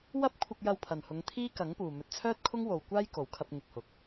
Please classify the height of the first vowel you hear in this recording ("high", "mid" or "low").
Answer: low